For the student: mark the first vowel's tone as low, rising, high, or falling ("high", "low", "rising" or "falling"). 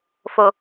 low